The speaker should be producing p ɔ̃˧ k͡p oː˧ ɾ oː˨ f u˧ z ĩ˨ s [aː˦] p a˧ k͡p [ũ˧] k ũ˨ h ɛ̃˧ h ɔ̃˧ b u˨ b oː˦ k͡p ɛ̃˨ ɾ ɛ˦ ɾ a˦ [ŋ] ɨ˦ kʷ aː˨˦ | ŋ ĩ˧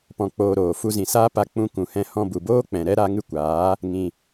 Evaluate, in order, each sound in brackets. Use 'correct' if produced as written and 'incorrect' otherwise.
correct, correct, correct

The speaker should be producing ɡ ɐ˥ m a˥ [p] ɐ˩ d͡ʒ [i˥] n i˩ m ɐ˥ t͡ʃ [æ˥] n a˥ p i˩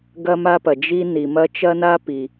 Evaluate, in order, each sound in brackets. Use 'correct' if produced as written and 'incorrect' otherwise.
correct, correct, incorrect

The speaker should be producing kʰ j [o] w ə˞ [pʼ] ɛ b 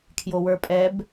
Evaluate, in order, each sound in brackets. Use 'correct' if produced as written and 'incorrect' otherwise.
correct, correct

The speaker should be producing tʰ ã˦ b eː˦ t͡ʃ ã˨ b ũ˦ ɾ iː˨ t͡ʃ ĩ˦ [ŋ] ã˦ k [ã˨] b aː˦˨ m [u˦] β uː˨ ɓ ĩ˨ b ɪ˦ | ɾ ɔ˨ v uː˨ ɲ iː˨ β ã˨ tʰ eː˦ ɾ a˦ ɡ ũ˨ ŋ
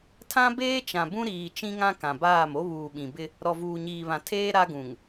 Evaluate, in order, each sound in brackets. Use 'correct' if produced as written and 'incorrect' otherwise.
correct, correct, incorrect

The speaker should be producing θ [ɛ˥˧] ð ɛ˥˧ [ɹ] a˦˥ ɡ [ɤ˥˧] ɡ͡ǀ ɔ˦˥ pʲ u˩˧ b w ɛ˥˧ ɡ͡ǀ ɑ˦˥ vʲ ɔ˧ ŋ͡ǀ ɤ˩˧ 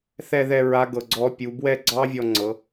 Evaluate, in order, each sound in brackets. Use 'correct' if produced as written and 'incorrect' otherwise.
correct, correct, incorrect

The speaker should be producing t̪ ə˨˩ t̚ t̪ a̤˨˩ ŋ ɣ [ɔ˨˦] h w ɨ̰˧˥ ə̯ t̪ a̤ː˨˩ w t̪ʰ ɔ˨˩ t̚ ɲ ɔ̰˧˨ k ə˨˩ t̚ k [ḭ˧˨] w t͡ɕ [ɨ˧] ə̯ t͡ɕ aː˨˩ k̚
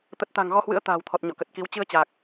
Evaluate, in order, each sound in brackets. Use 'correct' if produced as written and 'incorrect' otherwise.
incorrect, incorrect, correct

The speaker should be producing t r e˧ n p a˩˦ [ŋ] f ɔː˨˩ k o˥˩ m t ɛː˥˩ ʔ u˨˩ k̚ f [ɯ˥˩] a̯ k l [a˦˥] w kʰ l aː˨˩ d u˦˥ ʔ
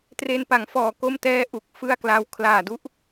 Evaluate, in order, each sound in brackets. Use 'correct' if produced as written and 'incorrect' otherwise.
correct, correct, incorrect

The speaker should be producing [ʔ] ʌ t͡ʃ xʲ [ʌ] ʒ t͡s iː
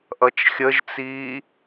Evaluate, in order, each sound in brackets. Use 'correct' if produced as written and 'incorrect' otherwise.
correct, incorrect

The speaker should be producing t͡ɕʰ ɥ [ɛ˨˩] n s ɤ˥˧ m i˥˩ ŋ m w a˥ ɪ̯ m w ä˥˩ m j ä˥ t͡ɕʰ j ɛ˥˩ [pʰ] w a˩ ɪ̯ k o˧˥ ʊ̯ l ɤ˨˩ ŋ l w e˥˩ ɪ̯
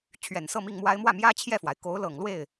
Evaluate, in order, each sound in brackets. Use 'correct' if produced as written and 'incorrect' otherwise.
correct, incorrect

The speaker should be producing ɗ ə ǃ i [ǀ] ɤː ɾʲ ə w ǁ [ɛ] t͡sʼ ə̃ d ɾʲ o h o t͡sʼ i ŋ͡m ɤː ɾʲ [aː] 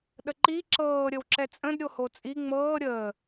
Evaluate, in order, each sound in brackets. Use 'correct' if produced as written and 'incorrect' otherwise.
incorrect, correct, incorrect

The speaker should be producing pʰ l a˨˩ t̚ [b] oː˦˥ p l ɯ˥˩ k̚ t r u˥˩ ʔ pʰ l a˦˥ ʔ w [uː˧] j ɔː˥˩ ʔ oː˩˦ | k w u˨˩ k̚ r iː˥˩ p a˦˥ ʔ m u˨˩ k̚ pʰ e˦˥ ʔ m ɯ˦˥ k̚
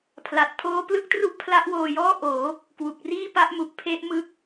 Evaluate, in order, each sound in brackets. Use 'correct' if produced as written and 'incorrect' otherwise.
incorrect, incorrect

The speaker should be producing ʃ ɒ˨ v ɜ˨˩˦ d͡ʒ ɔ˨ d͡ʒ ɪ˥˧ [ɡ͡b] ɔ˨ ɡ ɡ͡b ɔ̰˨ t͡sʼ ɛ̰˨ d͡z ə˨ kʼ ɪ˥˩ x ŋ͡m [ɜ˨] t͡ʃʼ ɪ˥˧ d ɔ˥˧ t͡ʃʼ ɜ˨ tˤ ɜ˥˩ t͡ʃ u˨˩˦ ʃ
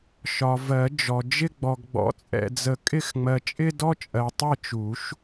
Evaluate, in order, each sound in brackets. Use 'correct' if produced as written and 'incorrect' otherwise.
correct, correct

